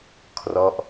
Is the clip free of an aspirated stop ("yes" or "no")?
no